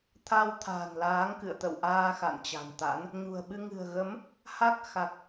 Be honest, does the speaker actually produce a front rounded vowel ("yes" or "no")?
no